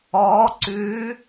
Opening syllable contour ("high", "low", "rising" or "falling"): rising